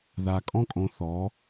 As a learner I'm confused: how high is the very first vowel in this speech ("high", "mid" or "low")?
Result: low